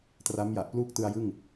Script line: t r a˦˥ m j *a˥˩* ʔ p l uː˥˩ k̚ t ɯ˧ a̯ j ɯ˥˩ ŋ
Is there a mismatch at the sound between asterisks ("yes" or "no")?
yes